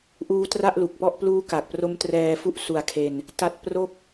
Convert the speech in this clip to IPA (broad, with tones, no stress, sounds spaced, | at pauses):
ʔ uː˦˥ t r a˥˩ ʔ l u˨˩ k̚ p ɔ˥˩ ʔ p l uː˦˥ k a˨˩ k̚ p r o˦˥ m t r ɛː˧ f u˥˩ ʔ s u˧ a̯ kʰ e˧ n | t a˦˥ t̚ p r o˥˩ k̚